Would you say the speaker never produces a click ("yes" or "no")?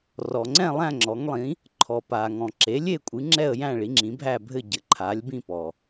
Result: no